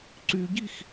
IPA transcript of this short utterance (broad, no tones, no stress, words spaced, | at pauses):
ǀyɟix